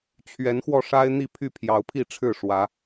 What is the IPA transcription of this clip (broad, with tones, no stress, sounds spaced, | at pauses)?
t͡ɕʰ ɥ ɛ˨˦ n x w ɔ˧ ʂ a˦ ɪ̯ n̪ i˥˨ pʰ y˥˨ pʰ j ɑ˨˦ ʊ̯ pʰ i˥˨ ʈ͡ʂʰ ɻ̩˥˨ ʂ w ä˨˦